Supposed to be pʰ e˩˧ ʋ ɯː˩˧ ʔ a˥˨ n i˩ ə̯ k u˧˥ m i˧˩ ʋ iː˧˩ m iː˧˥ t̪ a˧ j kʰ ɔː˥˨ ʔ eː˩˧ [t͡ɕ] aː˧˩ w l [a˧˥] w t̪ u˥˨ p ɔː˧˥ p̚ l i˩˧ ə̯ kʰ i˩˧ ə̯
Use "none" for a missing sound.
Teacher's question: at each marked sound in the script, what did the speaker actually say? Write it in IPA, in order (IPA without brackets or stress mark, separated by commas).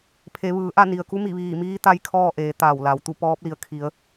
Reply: t̪, a˩